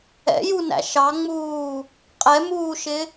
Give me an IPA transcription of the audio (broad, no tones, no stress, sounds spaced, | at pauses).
ɛ̰ j u n æ̰ ʃ ɑ ŋ͡m uː | qʼ ɛ m uː ʃ ɪ